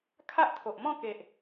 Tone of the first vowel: high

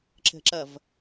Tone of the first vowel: low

